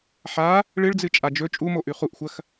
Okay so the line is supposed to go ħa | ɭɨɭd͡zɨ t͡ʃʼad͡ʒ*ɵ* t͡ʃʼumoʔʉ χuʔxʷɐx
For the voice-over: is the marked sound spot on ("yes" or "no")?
yes